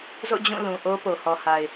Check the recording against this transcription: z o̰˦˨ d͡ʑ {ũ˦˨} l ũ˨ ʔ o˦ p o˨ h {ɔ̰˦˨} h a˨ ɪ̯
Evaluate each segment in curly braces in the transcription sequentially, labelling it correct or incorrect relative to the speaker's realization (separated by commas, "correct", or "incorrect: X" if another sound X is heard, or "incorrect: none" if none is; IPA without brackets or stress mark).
correct, incorrect: ɔ˨